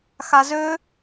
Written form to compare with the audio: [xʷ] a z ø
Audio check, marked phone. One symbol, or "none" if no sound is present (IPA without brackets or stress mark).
x